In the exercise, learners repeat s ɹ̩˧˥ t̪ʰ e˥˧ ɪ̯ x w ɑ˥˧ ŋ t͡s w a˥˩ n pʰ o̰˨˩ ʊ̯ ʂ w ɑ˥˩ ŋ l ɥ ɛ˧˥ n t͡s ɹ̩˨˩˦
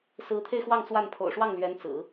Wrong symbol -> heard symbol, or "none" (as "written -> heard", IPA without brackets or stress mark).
none